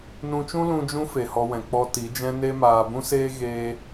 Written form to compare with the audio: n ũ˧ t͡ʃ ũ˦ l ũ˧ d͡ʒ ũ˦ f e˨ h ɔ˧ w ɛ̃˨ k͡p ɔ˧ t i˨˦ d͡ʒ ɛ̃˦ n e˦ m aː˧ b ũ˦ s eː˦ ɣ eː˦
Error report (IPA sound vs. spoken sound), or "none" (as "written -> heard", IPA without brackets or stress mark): none